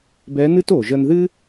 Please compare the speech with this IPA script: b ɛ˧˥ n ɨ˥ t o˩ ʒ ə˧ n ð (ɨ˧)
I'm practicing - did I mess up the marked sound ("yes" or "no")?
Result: yes